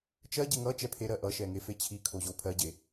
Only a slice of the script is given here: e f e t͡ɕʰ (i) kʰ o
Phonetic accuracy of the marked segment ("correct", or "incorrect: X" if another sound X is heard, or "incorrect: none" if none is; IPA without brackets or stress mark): correct